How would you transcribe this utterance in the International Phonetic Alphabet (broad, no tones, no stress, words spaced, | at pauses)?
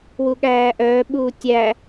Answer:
wuɠæːʔœː ɓuːtʲæ